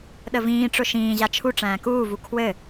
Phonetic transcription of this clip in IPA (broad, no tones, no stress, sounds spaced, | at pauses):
ɗ ə v ĩː ʈ͡ʂ ʊ ʃ ĩː ʑ a t͡ʃʰ u ʈ͡ʂ æ̃ː k uː v u kʰ w ɘ